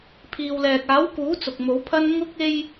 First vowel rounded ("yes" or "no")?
no